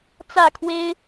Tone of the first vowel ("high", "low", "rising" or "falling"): falling